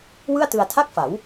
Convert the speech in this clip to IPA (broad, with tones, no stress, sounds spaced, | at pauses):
w ɯ˥˩ a̯ t ɯ˧ a̯ tʰ a˥˩ k̚ f a˩˦ w